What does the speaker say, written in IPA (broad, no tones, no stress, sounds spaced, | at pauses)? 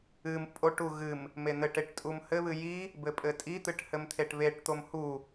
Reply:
ɨ m pʼ o ʈ u ɣ ɨ m | m e n̪ ɘ ʈ e ʈ tʼ u m h ɘ β ɨ j i | b ɘ pʼ ɘ tʼ i t̪ ɨ ʈ h ɘ m t̪ʰ e ʈ β e ʈ t̪ o m h u